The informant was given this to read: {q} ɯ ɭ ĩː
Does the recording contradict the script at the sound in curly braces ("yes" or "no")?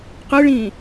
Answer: no